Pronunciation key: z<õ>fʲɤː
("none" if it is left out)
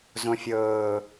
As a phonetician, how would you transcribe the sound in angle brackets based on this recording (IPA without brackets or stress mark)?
õ